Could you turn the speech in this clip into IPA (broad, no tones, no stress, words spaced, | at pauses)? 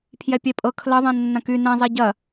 pʰjɛpʲɛpʼɤ kʰlɐðˤɛ̃ nːɐ̃ky nɛ̃zˤɛ ɟɐ